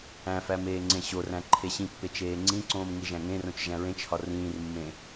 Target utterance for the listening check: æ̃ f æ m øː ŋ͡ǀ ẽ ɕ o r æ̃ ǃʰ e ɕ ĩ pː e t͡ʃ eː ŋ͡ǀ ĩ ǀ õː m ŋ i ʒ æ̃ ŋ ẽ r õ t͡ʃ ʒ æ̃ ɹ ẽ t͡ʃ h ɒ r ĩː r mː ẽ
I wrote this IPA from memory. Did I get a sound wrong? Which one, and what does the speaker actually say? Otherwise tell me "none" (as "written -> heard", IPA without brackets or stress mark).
øː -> eː